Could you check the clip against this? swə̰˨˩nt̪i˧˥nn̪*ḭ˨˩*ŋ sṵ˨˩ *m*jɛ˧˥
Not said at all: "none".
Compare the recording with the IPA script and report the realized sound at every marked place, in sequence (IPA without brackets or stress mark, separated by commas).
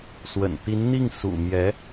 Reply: i˥˩, m